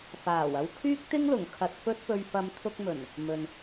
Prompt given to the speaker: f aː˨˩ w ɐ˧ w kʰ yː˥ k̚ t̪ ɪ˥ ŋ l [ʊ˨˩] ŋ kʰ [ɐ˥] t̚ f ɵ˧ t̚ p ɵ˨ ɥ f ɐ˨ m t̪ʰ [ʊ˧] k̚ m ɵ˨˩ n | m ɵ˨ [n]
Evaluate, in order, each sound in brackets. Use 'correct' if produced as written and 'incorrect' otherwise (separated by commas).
correct, incorrect, correct, correct